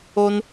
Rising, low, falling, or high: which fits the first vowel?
high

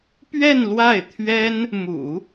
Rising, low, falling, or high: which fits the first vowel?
falling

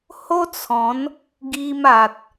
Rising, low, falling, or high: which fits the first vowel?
high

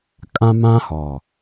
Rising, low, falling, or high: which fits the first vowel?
high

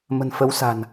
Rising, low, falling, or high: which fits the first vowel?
low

